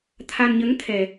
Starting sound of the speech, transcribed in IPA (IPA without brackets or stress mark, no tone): t̪ʰ